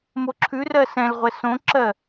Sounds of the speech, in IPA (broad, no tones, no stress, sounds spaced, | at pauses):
m o ǁʰ ʉ r ɜ s ɛ̃ l ʁʷ ɛ s õ ǁ ɜ